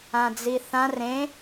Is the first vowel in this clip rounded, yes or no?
no